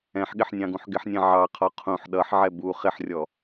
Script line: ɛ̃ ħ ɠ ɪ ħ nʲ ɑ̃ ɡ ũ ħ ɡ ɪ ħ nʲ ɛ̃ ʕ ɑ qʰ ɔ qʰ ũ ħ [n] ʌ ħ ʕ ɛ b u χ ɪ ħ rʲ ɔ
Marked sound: incorrect: ɗ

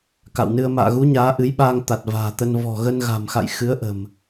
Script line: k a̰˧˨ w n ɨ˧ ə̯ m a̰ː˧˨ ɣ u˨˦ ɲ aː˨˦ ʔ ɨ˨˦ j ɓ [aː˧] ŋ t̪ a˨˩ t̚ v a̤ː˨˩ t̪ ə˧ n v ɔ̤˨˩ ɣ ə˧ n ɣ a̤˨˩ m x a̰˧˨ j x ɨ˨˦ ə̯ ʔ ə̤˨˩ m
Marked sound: correct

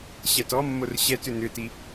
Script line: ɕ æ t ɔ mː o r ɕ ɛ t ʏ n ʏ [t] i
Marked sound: correct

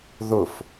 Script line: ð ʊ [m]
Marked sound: incorrect: f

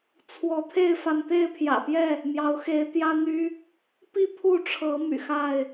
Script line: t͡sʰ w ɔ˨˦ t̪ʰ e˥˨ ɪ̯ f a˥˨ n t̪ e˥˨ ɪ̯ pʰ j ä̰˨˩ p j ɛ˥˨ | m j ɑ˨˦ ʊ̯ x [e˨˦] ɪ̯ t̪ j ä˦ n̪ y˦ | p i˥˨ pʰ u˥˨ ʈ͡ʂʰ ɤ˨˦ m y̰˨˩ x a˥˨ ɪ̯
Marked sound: correct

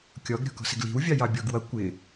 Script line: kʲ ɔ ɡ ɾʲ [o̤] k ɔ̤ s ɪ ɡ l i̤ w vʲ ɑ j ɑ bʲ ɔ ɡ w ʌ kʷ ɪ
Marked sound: incorrect: ɔ̤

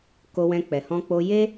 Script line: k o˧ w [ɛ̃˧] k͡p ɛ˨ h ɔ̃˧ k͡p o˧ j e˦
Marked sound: correct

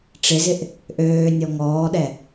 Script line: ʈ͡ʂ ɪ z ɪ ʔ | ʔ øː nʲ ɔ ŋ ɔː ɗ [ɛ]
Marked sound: correct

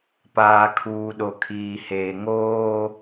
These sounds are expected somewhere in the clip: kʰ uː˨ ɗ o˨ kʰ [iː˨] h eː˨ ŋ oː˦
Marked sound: correct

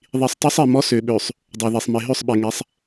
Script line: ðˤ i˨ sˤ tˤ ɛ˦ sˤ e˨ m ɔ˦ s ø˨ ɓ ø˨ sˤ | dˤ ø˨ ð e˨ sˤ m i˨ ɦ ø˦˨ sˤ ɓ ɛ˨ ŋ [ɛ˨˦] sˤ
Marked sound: correct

